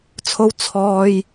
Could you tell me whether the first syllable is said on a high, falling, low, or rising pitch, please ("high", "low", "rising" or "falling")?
high